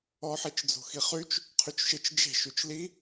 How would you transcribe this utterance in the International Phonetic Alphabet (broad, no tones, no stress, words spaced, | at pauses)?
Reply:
ɔħit͡ʃd͡zo̤ xiχyt͡ʃ | qʰyt͡ʃʃɪt͡ʃ d͡ʒe̤ʃyt͡ʃ li